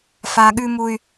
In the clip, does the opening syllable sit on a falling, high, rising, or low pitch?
high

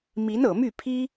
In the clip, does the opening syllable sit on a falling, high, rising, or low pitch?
rising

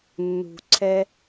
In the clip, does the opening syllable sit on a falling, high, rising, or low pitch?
low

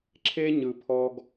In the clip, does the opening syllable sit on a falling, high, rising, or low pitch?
high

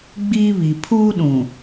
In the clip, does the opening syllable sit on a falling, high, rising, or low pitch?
high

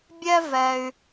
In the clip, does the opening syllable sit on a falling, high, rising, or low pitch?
high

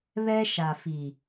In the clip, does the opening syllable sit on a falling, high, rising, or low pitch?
high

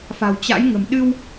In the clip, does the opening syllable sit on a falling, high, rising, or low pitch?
low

